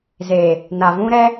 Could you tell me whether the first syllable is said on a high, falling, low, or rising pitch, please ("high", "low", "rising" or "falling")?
low